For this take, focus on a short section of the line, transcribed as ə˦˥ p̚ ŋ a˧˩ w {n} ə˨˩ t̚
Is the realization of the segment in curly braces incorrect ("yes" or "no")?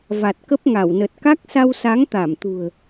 no